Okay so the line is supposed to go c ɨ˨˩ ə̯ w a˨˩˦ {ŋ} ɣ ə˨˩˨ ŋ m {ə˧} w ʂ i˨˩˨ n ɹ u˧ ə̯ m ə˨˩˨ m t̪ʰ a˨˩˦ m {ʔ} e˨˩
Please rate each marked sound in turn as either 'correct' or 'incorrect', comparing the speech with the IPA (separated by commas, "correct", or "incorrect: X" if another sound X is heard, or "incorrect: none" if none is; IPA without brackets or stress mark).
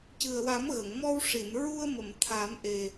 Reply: incorrect: m, incorrect: ɔ˧, correct